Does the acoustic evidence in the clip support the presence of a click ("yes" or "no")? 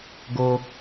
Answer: no